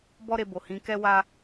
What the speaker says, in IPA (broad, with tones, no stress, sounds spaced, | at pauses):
b ɔ˦ ɾ e˧ b o˨ h ĩ˨˦ k ɛ˦ w a˦